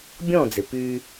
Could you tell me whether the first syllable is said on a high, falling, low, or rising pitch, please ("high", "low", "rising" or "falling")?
falling